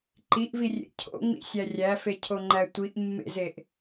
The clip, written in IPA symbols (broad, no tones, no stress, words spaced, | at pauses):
ǃiʔvirʲḛ cʰo̰ŋ͡mḭsʲæ rʲæfecʰoŋ͡ǃæ tʷiʔmːḛzeʔ